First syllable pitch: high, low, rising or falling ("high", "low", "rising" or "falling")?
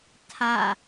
falling